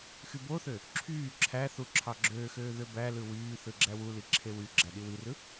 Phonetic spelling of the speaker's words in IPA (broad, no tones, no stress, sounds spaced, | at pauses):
x y b o θ ø | ǁʰ yː ǁʰ æ θ u ǁʰ ɑ ɡ͡ǁ øː x øː ð ø b æ l ɯ w yː θ ɯ ɡ͡ǁ æ w u l i ǁʰ e w y ɡ͡ǁ æ ɗ i w i r ɯ